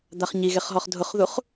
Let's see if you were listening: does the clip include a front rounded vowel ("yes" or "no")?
no